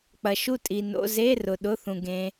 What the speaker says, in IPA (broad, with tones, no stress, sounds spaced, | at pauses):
k͡p ɐ˨ ʃ u˥˨ tʼ i˨ n o̰˧˥˧ z e˧˥˧ r ʊ˨ ɗ ʊ˧˥˧ θ ũ˨ ɡ ẽ˦˥